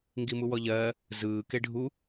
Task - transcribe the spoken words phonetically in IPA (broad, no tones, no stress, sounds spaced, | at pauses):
ŋ ɡ i m u w ɔ ʎ ɜː | z ɯː k e ɖʱ u